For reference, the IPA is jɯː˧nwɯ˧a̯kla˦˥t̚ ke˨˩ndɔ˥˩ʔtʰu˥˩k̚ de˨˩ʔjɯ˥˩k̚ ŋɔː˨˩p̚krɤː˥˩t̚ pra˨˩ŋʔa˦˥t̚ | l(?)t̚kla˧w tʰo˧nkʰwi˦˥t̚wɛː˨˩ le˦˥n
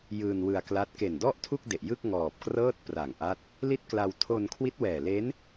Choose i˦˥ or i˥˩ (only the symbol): i˥˩